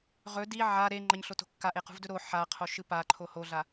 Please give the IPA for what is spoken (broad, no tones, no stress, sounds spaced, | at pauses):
ʁ ɵ d i ʕ a ɾ e ŋ͡ǃ ɐ ɲ ɬ o t o̤ kː a ʔ e q ṳ v d ɵ ɾ o ħ a qʰ o ʃ ɨ p a ǃʰ o h o ɮ a